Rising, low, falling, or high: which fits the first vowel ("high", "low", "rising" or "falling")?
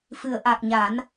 low